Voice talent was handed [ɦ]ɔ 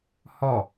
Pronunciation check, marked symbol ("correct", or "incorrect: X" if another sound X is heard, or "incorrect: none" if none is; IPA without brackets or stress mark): incorrect: h